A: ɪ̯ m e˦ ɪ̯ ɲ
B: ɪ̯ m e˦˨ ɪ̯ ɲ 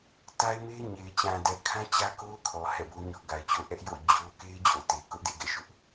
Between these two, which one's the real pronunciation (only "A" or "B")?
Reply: A